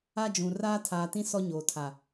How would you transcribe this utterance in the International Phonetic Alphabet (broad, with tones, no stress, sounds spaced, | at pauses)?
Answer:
a˦ d͡ʒ ũ˨ r aː˦ tʰ aː˨ t ĩ˦ s ɔ˦ ɲ oː˨ tʰ a˨